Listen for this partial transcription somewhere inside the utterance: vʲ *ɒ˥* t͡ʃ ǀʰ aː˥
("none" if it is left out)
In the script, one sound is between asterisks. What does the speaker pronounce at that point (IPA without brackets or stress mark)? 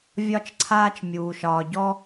ɒ˥